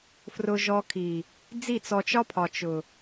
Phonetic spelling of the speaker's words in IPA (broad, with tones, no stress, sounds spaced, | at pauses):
f r ʊ˧ ʒ ɔ˧ kʰ i˨ | d͡z i˦˨ t͡s ɔ˧ t͡ʃ ɒ˦ pʰ ɒ˨ t͡ʃ ʊ˨